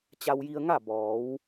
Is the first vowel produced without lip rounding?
yes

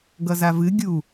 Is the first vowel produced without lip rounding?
yes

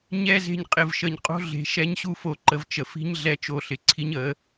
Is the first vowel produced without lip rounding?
yes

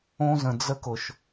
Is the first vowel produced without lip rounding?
no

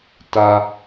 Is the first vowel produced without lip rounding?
yes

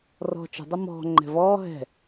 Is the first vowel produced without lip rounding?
no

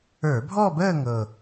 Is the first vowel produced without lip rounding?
yes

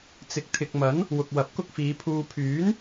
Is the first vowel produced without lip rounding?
yes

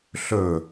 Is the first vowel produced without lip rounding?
no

